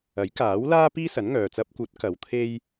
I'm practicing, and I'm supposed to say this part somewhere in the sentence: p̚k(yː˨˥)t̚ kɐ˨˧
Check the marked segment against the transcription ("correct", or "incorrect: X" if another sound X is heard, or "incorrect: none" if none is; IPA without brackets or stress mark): incorrect: uː˨˥